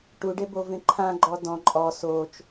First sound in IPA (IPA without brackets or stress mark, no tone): ʈ